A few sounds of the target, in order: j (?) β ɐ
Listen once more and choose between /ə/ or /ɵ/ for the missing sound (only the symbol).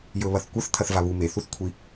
ɵ